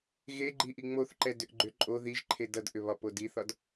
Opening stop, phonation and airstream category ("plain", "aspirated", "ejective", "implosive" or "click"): click